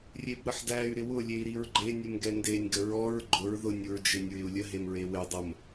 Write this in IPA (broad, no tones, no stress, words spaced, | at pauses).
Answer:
rʲebɾəħdæy̯ ɾɪwʊ lʲei̯ɾiɹɡ͡ǃe nʲəmɡɛndenʲ ɡəɹɔɹ ɡ͡ǃʊɹ ðʊnʲ uɹd͡ʒenʲɹɪu̯lʲə ɦemɹewɪ dˤəm